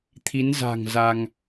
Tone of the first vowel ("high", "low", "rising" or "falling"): rising